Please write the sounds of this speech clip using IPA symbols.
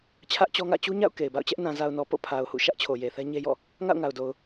t͡ɕʰ ä˦ ʔ t͡ɕ ɔ˦ ŋ ä̰˦˨ t͡ɕ u˦ ɲ a̰˦˨ ʊ̯ k e˨ ɪ̯ b a̰˦˨ ʊ̯ t͡ɕ ɛ˦ ʔ n ã˨ z a˨ ʊ̯ n ɔ˨ p o̰˦˨ pʰ a˨ ʊ̯ h ṵ˦˨ ʃ ä˦ ʔ t͡ɕʰ o˨ j e˨ θ ɛ˦ ɲ e˦ j ɔ̰˦˨ | ŋ a̰˦˨ ʊ̯ ŋ a˨ ʊ̯ d o˨ ʊ̯

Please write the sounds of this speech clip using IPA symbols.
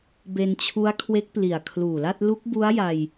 b e˧ n t͡ɕʰ u˦˥ a̯ kʰ w e˦˥ k̚ p l i˨˩ a̯ kʰ l uː˨˩ l a˥˩ t̚ l u˦˥ k̚ b u˦˥ a̯ j a˧ j

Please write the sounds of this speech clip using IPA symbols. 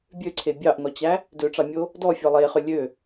bʲ ø ǀʰ e bʲ ɑ ʔ n ɔ t͡ɕ æ | d ø ʈ͡ʂ ɑ mʲ o | d ɔ fʲ ɔ lˠ e χ ø lʲ ø

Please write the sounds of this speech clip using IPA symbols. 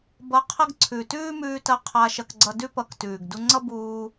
b ʌ˧ qʰ ɐ˦ ɡ ǀʰ ʉ˨ t ʉː˦ m ʉː˧ t ɐ˧ qʰ aː˧ ʃ ɐ˧ k ɡ͡ǀ ʌ˧ d ʉ˦ p ʌ˧ k t ʉː˨ ɡ d u˧ ŋ͡ǀ ʌ˦ b uː˧

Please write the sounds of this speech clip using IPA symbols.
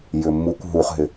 j ʏ mː u kʷ ɦ u χ ɦ ɪ

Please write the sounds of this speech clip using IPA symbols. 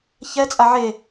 ç ɛ t͡sʼ a ʕ e

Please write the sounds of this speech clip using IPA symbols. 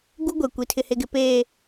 ɡ u˦ ɡʷ e˨ kʷ i˨ tʰ ɪ˨ h e˨ ɡ ɪ˨ p e˨

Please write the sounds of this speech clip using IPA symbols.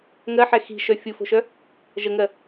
ŋ ɜ ħ ɛ x i̤ ʃ œ fʲ u f o̤ ʃ œ | ʒ ə ŋ ɜ

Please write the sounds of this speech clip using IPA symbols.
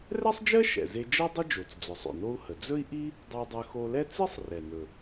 r ɛ˥ sˤ d͡ʒ ɜ˥ ʃ ɛ̰˩ z e˧ d͡ʒ ɜ˥ dˤ ə˥ d͡ʒ o˩ t͡s d͡z ʊ˩ sˤ o̰˩ n o˧ u̯ h ə˩ d͡z ɵ˥ i̯ ʔ i˥ | dˤ ɜ˧ dˤ ɜ˧ x o˧ l ɛ˥ t͡s i˥ sˤ r ɛ˩ n ɵ˩

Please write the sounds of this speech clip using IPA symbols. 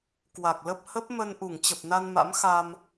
k w a˨˩ k̚ l ə˦˥ p̚ h ə˦˥ p̚ m ə˧ n ʔ u˧˩ ŋ t͡ɕ ə˨˩ p̚ n a˧ n m a̰˧˥ m x a˧ m

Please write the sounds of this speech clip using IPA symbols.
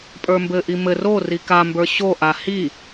pʼ ə˞ m b ɘ ʔ i m ɘ r o r i k a m b ə˞ ɕ o ʔ a h i

